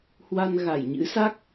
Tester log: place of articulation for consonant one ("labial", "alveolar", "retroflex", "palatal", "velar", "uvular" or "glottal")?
glottal